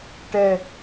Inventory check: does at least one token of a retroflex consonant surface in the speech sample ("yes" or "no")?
yes